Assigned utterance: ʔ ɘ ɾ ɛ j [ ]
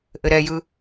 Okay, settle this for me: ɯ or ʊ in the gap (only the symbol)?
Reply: ɯ